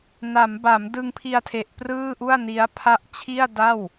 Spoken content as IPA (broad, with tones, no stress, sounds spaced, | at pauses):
n a˩˦ m b a˩˦ m d ɯ˧ ŋ pʰ i˧ a̯ tʰ e˨˩ ʔ p r ɯː˥˩ ʔ u˥˩ a̯ n i˦˥ a̯ pʰ a˥˩ ʔ t͡ɕʰ i˥˩ a̯ d a˥˩ w